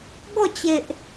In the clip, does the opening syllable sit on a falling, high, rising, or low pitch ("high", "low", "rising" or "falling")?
falling